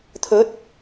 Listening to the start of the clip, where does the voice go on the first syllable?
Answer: rising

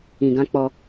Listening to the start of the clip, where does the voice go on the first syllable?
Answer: low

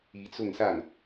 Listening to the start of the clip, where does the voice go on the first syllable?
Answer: rising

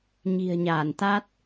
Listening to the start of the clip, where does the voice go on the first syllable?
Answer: low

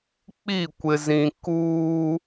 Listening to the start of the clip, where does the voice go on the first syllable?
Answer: falling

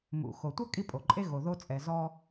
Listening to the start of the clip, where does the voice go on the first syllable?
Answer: low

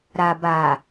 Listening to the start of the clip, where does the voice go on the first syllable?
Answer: low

